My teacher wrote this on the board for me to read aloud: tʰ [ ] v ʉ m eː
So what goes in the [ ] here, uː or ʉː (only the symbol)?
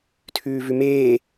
ʉː